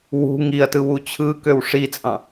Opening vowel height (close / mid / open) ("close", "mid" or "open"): close